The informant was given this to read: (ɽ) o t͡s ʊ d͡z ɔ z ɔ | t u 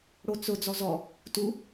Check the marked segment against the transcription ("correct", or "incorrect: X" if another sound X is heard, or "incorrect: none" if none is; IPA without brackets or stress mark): correct